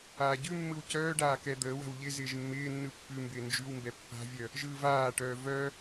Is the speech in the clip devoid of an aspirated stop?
yes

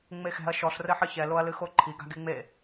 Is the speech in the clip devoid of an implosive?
yes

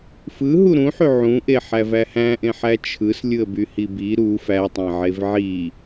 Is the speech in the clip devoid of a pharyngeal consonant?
no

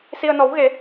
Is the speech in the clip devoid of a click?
yes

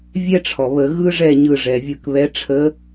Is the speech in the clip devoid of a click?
yes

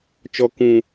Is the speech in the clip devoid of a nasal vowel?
no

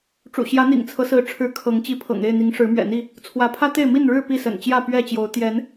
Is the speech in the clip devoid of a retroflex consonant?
no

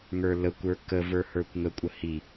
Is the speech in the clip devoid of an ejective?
no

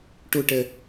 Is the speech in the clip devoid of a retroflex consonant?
no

